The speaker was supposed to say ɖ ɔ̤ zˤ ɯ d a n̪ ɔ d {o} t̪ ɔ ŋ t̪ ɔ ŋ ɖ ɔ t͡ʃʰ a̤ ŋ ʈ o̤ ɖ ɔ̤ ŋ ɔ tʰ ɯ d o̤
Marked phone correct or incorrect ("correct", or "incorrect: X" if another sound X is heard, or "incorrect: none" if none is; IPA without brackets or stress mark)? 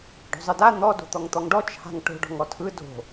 incorrect: o̤